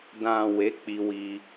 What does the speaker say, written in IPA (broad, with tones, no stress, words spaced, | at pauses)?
dã˨ we˨˦ k͡pi˧wi˧